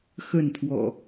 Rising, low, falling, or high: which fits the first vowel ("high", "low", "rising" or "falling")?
falling